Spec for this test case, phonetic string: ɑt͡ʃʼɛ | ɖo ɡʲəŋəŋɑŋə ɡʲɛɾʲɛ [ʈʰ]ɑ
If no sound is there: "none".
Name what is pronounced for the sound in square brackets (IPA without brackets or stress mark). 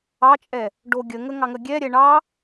ɳ